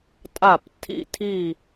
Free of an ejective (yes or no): no